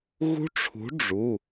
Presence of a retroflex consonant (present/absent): present